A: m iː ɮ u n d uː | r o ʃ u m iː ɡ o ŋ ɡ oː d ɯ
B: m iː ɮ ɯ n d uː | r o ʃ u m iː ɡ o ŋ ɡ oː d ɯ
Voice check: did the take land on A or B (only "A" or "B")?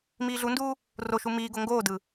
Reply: A